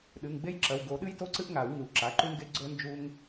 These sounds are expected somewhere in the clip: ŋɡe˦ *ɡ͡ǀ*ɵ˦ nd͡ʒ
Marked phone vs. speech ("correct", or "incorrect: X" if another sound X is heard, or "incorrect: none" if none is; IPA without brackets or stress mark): correct